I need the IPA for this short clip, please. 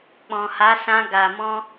k͡p ɔ̃˨ h a˨˦ s ã˧ ɡ a˨ m ɔ̃˧

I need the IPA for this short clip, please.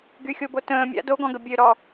ɡ y xʲ o b o t ə̃ː mʲ a̰ d o ɡ ɔ̃ ɡ ə bʲ ø ɾ ɔ

